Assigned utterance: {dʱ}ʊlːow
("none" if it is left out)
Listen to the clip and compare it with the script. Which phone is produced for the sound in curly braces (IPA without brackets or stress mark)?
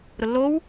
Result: ɾ